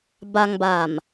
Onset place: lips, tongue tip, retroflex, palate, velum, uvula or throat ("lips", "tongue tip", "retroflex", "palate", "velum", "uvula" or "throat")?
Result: lips